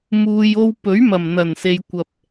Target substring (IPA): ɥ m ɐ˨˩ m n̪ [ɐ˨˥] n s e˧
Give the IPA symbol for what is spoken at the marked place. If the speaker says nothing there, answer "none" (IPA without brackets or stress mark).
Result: ɐ˨˩